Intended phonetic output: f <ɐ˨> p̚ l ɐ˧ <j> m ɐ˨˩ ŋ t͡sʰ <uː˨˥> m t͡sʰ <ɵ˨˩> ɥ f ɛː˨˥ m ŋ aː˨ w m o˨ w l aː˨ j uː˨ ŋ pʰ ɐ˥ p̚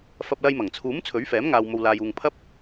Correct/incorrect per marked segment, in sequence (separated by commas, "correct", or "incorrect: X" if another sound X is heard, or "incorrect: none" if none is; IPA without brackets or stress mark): incorrect: ɐ˧, correct, correct, incorrect: ɵ˨˥